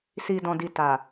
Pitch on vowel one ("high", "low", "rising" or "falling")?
low